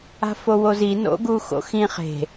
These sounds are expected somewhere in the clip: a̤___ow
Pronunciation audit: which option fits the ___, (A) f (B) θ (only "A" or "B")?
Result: A